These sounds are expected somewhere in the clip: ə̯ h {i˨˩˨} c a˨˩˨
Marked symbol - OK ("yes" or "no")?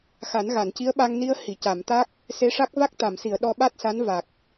yes